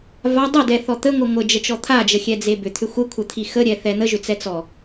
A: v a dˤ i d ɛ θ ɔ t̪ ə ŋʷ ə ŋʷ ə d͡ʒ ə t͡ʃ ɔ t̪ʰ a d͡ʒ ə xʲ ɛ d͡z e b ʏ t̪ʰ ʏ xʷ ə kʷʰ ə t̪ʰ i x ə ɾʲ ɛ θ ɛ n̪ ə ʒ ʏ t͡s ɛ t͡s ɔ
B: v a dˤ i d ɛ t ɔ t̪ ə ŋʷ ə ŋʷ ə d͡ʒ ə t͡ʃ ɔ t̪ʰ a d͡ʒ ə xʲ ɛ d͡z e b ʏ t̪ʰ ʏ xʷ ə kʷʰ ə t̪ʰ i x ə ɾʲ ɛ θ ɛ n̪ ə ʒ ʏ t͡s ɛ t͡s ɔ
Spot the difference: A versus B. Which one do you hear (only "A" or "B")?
A